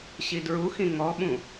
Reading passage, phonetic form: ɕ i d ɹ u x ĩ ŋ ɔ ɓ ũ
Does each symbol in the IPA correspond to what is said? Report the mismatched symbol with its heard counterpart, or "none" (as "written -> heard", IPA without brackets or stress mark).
none